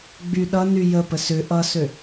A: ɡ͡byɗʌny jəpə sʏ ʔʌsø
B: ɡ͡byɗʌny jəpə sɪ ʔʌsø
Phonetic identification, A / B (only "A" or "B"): A